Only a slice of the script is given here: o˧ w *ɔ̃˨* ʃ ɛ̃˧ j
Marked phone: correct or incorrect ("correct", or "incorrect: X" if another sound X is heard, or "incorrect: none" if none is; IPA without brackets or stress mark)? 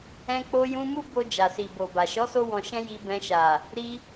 correct